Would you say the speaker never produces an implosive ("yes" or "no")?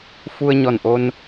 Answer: yes